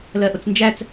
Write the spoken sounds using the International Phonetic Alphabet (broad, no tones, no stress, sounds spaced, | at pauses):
l ɜ ʔ ʊ t͡s n d͡ʒ æ t͡s